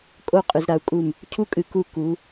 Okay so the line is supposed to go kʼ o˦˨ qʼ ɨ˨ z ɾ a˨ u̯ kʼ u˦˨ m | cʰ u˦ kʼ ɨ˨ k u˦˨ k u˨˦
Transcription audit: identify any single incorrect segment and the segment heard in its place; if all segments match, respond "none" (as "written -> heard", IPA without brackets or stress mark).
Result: none